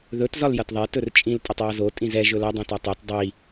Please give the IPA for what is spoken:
ð ɵ t z ɒ l j ɐ t ðˤ ɛ t ɵ r t͡ʃʼ ĩ l tʼ ɐ tˤ j ɔ z o tʼ ĩ z ɛ ʒ ɵ l ɐ dˤ ĩ t ɒ tˤ i t dˤ i

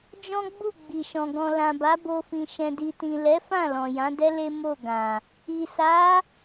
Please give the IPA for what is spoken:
d͡ʒ ɔ̃˦ ɡ͡b u˦˨ ɡ͡b i˨ ʃ ɔ̃˨ ɡ ɔ̃˨ l ã˨ b a˨˦ b o˧ f ĩ˨ ʃ ɛ̃˨ d i˨ t ĩ˨ l ɛ˨˦ f ã˦˨ l ɔ̃˨ j ã˨˦ d ɛ˦ l e˦ m o˦˨ ɡ ã˨ | i˨ s a˨˦

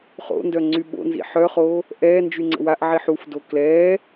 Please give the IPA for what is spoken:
χ o̰ n d œ ŋ͡ǀ y ɓ o̰ n z ḭ ħ œ χ oː | ʔ ɛː n d͡ʒ y ŋ͡ǀ ə̰ w a ʔ ʕ i ħ u f d o k l ɛː

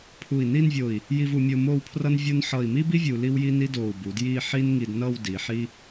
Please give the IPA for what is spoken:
pʰ u˧˩ i̯ n i˥˧ n vʲ o˧˩ i̯ | j i˧ v u˩˧ mʲ o˧ m o˥˧ w pʰ r ʌ˥ n vʲ o˥ n ħ ʌ˧˩ i̯ m i˥ b i˥ vʲ u˧ l i˥ w j i˥ n i˥ d o˧˩ u̯ b u˩˧ d j i˥˧ ħ i˥ n ŋ i˧ d n ʌ˥˧ w d i˩˧ ħ i˥

